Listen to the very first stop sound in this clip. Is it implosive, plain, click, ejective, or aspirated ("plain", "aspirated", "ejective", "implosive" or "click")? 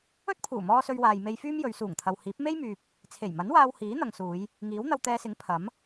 plain